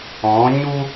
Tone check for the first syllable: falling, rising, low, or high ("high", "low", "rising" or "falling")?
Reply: rising